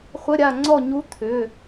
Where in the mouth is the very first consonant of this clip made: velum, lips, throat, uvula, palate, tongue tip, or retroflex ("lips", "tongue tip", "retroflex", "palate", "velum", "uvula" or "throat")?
uvula